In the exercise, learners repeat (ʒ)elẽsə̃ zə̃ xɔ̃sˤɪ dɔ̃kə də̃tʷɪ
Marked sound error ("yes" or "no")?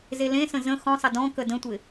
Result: yes